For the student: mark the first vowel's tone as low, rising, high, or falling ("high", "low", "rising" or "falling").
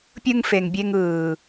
high